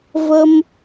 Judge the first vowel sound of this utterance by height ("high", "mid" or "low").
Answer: mid